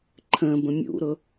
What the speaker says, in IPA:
ǃʰ ə̃ b ə̃ mʲ ṵ ɾ ʊ

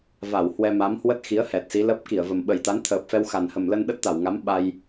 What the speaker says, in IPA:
v a˧˩ w h w ɛ˧ m a˨˦ m h w ə˦˥ t̚ x i˨˦ ə̯ h ɛ˨˩ t̚ s i˨˦ l ə˦˥ p̚ k i˧˩ ə̯ v ə˨˩ m ɓ ə˨˩ j t̪ a˨˦ n t̪ʰ əː˨˩ p̚ f ɛ˧ w x a˨˩ n h ə˨˩ m l ə˧ n ɗ ə˦˥ t̚ t̪ a˧˩ w ŋ a˨˦ m ɓ a˧ j

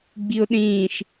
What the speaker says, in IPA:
ɡ͡b i ʊ̯ ɗ ĩː ʃ

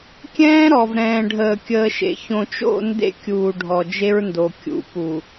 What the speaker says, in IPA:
kʲ ɛ̃ː˦ ɾ ɔ˨ v ɾ ɛ̃ː˨ ɖʱ əː˨ kʲ əː˨ ʃ ḛ˨ ç õ˨ t͡ʃ o̰˦˨ n d ḛ˦ kʲ uː˨ ɖʱ ɔ˨ d͡ʒ e˦ ɹ n d o˨ kʲ ṵ˨ p u˨

